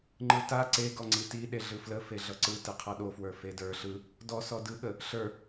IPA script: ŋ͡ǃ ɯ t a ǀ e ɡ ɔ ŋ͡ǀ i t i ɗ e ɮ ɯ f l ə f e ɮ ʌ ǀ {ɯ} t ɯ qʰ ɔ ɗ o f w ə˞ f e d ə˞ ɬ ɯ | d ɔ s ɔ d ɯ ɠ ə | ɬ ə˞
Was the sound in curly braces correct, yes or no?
yes